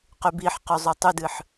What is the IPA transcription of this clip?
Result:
qybiħqʉzˤo tˤʉdɨħ

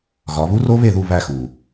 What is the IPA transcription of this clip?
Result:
ɣɒ˨˦ βu˦˥ro˦˥βe˦˨ðu˦˨ βæ˦˨xu˩

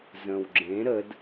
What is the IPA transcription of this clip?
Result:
zə̃w ɡ͡ǁẽ ɾəd

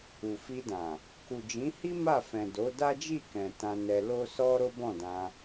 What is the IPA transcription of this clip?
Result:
u˨fi˧dã˨ | ku˨d͡ʒĩ˨˦hi˦ ma˦˨fɛ̃˨ do˨˦da˦d͡ʒi˦˨kɛ̃˨ tã˧nɛ˧ lo˦ sɔ˦ ɾo˦bɔ̃˦˨dã˧

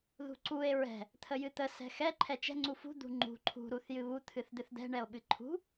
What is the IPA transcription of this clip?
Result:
ðṳǀue̯ ɹɛ̤ | t̪ʰəjɨt̪ə sɛ̤xɛ ǃʰɛt͡ʃɛ̤ ŋ͡ǀufṳ d̪ṳŋ͡ǃṳ ǃʰṳ ɾuθjɨβu t̪ʰɨθd̪ɨθd̪ɛ̤ ɳɛo̯ɓɨǃʰṳ

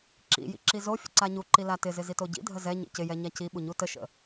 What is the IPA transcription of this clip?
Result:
ǁḭ jḭǁizofʲə̰ ǀaɲuǃi latɪzɪ zitoɟḭdʱə zɛɲḭ cɪjɛ ɲaciɓu ɲutəʃə̰

